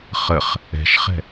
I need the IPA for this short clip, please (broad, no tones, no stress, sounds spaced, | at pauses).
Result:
χ ə χ | ɛ̤ ʃ χ ɛ̤